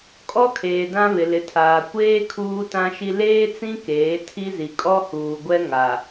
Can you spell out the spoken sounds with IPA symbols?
kʼ ɔ˦ kʰ eː˨ d ã˦ β ɪ˨ l ɪ˨ tʰ aː˨ kʷ eː˦ kʰ uː˦ t ã˦ ʃ i˦ l eː˦ t͡s ĩ˦ k eː˨˦ tʰ i˦ z i˨ kʼ ɔ˦ h uː˨ ɡʷ ɛ˦ ŋ a˨

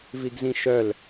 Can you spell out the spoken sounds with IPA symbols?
v i ɡ z ĩ ʃ œ l

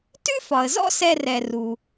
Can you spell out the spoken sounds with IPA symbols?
t ʉ˦ f ɒ˨ ə̯ z ɔ̰˦ s ɛ˧ r ɛ˧ r u˧

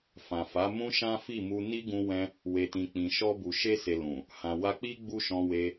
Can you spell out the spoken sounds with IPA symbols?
f ã˨ f a˨˦ m ũ˦ ʃ ã˦ f i˦˨ m u˧ n i˦ ɡ ũ˧ w ɛ̃˧ | w e˨ t ĩ˨ k͡p ĩ˨ ʃ ɔ˧ b u˨ ʃ e˧ s e˨ l ũ˨ | h ã˨ w a˧ k͡p i˦ ɡ͡b u˦ ʃ ɔ̃˧ w e˧

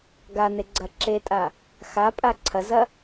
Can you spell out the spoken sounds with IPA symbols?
ɡ a n e ɡ͡ǀ ɐ ǁ e tʼ a | x a pʼ a ǀʰ ɐ z ɐ

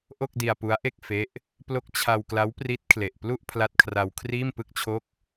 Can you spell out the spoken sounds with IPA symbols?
ʔ o˥˩ k̚ d i˧ a̯ p u˦˥ a̯ ʔ e˥˩ k̚ f e˦˥ ʔ | p l o˦˥ k̚ t͡ɕʰ a˧ w k l a˦˥ w p r i˦˥ t̚ kʰ l e˨˩ ʔ p l u˥˩ ʔ pʰ l a˦˥ t̚ kʰ r a˧ w kʰ r iː˥˩ m p ɯ˥˩ k̚ t͡ɕʰ o˥˩ k̚

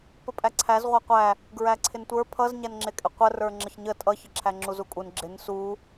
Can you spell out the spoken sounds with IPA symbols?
p ə pʼ æ ǀʰ æ z ʁʷ æ qʷ æ | ɡ ɹ æ ǀʰ ɪ n tʷ ə˞ pʰ ʌ z ɲ æ n ŋ͡ǁ ɪ kʼ ɪ qʷ ə r ə˞ ŋ͡ǁ ə ç ɲ ə tʼ ʌ ç ə ǁʰ æ ŋ͡ǁ u z u kʼ u n ɡ͡ǁ ɪ n s u

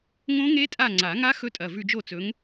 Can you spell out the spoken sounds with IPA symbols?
ŋ õ˦˥ ŋ e˦˥ tʼ a˦˨ ŋ͡ǀ a˨˩˦ ŋ a˦˥ x ɵ˦˥ tʼ ɐ˩˧˩ v ʉ˦˨ d͡ʒ o˦˨ t͡s ɵ˨˦ ŋ

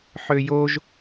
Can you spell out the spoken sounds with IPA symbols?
ħ ø j o ʒ

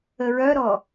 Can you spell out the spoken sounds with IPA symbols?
ə ɹ œ ɾ ɔ

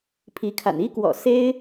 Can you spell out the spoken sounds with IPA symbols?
pʰ i˧˥ kʰ a̰˨˩ n i˥ k w ɔ̰˨˩ s e˥ ɪ̯

